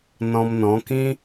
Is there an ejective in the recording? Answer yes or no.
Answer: no